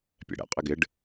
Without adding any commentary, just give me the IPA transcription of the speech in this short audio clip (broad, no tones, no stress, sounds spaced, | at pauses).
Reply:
pʲ ɛ̰ ɽ ɛ̰ qʼ ɪ ɡ ɪ ɖ